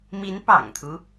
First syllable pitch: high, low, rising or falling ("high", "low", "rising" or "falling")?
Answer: rising